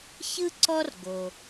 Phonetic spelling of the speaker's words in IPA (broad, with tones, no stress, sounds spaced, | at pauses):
ç ɯ˥ ǀ ɔ˥ r ɡ o˩